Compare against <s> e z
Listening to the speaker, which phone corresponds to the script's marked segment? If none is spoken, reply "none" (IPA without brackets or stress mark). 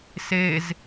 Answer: s